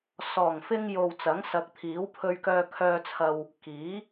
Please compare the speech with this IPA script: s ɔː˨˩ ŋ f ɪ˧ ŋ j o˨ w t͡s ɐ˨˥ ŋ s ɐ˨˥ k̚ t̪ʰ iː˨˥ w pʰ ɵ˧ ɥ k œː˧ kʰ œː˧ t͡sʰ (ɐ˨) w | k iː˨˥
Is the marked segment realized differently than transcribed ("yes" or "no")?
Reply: yes